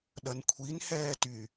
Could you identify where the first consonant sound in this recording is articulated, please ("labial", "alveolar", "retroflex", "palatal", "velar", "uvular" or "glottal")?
alveolar